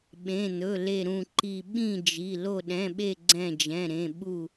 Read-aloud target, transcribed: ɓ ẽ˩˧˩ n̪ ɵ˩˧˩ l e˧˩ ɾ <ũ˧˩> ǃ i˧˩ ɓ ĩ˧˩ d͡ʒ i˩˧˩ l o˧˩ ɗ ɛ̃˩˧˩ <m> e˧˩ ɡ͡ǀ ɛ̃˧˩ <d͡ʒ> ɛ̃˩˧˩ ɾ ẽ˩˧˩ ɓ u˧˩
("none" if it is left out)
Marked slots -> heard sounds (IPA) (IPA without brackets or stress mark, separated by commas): ũ˧˩, ɓ, d͡ʒ